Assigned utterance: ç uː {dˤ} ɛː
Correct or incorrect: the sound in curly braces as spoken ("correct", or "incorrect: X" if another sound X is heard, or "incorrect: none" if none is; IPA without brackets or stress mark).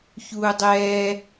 correct